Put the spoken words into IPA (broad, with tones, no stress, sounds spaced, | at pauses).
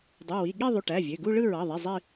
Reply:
dˤ u˩˧˩ w i˩˧˩ ɠ i˥˧ ðˤ y˩˧˩ ʈ æ˩˧˩ vʲ ø˩˧˩ ɡ u˥˧ ɭ ɯ˥˧ ɹ ɑ˩˧˩ ðˤ i˩˧˩ zˤ i˥˧